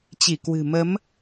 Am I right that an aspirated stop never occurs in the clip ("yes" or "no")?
yes